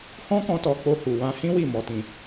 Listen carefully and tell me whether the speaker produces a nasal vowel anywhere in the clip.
yes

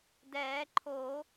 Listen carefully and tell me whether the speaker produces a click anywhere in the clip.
yes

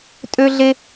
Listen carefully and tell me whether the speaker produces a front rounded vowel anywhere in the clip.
yes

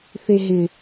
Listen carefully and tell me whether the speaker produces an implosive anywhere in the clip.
no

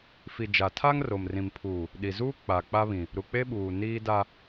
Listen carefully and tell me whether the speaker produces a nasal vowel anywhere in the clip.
yes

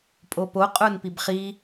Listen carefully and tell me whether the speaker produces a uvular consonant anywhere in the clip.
yes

